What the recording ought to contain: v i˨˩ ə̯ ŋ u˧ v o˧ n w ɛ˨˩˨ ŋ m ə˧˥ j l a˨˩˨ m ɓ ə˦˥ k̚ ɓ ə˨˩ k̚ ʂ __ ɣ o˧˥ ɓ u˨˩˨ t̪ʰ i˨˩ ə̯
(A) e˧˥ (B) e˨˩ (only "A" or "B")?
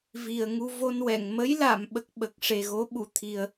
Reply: B